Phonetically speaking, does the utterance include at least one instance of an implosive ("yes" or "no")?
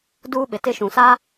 yes